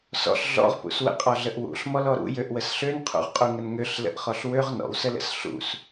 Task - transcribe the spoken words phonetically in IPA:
s ɔ̰ ɬ ɮ ɔ̰ ʁ p ṵ s w ə̰ qʼ ɔ ɮ ə ʔ w ṵ ɬ m ɔ l ɔ ɾ ṵ j ø ʔ w ə s ɬ ø n qʰ ṵ ʁ qʼ u ŋ ə n ŋ ø ɬ l ə̰ ʔ χ ɔ ɬ w ø ʁ n ɔ̰ w s ə l ə̰ s ɬ ṵ s

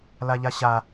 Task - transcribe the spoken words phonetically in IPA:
l a ʎ a ɕ a

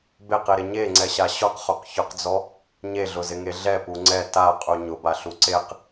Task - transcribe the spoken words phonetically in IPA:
b e q i ɾ ɪ ɲ e ŋ͡ǀ ɛ ɕ a ɕ ʊ q χ o q ç ʊ q d͡z ɔ | ɲ e ɮ ʊ z ɪ ŋ e ɮ ɛ p u ŋ͡ǀ ɛ t a qʼ u ɲ ʊ b a ɬ u ǀ e q

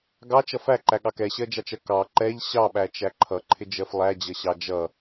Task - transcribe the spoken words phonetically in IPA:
ɡ ɑ t͡ʃ ʌ f æ ǃ æ ɠ ɑ k ɛ ɕ ɜ d͡ʒ ɑ t͡ʃ ɜ k ɑ ǃ ɛ ʎ ɕ ɑ ɓ æ t͡ʃ æ ǃʰ ʌ ǃʰ ɪ d͡ʒ ɜ f lˠ æ d͡ʑ ʌ ɕ ɑ d͡ʒ ʌ

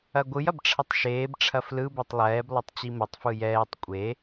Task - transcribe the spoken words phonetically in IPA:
ɐ ɡʷ ɯ j ɐ b ʈ͡ʂʰ ɐ tˤ ʃ eː b ʈ͡ʂʰ ɐ f l ɯ b ɛ tˤ lˠ ɛː b lˠ ɐ tˤ t͡ɕ i m ɐ tˤ f ɯ j ɛː tˤ kʷʼ e

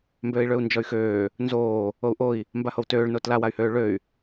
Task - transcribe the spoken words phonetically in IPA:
m b øː i̯ ɭ ø u̯ n d͡ʒ ɔ y̯ x øː | n z oː | o u̯ ʔ o i̯ | m b a h o w t øː ɭ n o t l a w a y̯ h øː ɭ ø y̯

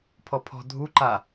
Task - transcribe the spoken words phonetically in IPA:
pʰ ɔ pʰ ɔ̤ dʱ u ǃ a

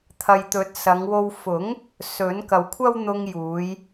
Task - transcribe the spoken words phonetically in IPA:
t̪ʰ ɐ˨ j t̪ ɵ˨˥ t̚ s ɐ˨˧ ŋ w o˧ w f ʊ˨˥ ŋ | s ɵ˨˥ n k ɐ˨ w kʷʰ ɐ˥ w n̪ ʊ˧ ŋ j uː˨˧ j

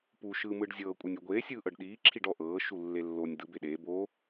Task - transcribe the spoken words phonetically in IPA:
p u ʃ ɯː m ɯː ɖ zʲ ɤː kʷʼ ɯ nʲ u ɡʷ eː sʲ ɯː ʔ ɤ ɖ ɗ iː ǁʰ i ɖ ɔ ʔ ɤː ʃ u lː e lː o nʲ d̪ ɯ b e ɗ eː b o

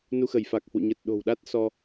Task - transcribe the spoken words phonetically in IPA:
n u˧ x ə˧˩ j f a˨˩ k̚ h w ṵ˧˨ ɲ ə˨˩ t̚ ɗ o̤˨˩ w ɗ a˦˥ t̚ s ɔ˧

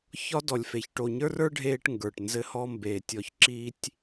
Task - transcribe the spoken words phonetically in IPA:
ç ɒ˦ d ɔ˨ lʲ f e˨ ç ʈ o˨ ɲ ə˞˦ r ə˞˦ ɖʱ eː˦ ʈ ŋ ɡ ə˞˨ ʈ n z ɘ˦ h ɔ˦ m b eː˨ tʲ ɔ˦ ç ǁ i˦ tʲ

